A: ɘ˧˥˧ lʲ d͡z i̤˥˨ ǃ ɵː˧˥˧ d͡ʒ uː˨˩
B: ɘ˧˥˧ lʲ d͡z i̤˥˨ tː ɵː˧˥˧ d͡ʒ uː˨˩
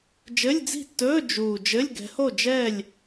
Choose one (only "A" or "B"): B